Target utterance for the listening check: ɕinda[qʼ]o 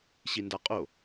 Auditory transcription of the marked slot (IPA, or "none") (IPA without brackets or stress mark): qʼ